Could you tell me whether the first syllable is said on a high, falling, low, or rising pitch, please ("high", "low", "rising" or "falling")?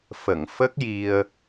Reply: low